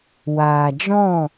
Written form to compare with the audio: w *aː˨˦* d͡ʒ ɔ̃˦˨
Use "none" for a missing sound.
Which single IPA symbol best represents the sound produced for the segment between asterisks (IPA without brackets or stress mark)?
aː˨